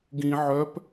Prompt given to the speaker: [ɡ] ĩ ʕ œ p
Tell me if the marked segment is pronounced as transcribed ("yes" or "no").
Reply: yes